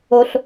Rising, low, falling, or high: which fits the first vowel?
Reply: high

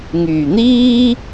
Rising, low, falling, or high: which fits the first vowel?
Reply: low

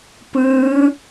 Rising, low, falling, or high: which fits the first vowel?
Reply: rising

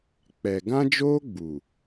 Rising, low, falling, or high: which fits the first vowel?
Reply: low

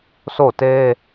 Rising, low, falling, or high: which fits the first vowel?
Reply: falling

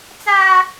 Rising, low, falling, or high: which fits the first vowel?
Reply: high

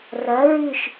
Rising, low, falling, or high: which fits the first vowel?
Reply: rising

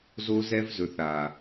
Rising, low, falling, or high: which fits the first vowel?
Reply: high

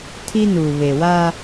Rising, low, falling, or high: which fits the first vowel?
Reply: high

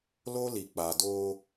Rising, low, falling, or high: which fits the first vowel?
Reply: high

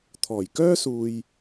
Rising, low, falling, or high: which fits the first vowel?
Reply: low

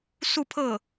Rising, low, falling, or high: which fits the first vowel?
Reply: falling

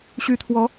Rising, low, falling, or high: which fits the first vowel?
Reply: rising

